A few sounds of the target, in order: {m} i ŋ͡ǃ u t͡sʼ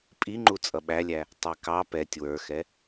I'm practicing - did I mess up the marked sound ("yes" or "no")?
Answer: yes